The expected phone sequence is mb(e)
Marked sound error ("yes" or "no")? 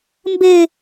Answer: no